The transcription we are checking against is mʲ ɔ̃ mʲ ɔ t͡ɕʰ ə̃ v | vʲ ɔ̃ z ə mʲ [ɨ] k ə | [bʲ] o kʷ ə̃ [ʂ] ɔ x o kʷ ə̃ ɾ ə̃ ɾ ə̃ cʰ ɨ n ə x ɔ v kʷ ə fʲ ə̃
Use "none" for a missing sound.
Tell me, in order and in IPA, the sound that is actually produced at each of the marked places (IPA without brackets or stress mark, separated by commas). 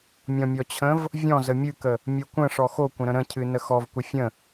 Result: ɨ, mʲ, ʂ